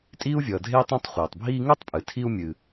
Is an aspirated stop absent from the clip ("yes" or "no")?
no